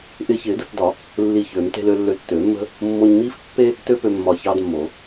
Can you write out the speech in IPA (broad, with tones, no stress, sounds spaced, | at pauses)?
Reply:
ʔ ɪː˧ ç ɪː˨˩˦ d ə˧ t d ɒ˨˩˦ | lː i˧˩ ç ø˨˩˦ m t e̤˧ l ø˧ lː ø˧ tː øː˨˩˦ mː ə̤˥ | mː o˧ ɲ m iː˥ f pː e˥ | t ø˥ p ø˧ mː ɒ˧˩ ç ɑː˥ d mː o˨˩˦